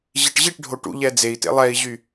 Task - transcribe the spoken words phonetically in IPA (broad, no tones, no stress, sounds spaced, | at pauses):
ʑ i ʈ ʑ i ʈ ɖʱ o ʈ ṵ ʎ ɛ d͡z e i̯ t ḛ lˠ ɛ i̯ ʑ y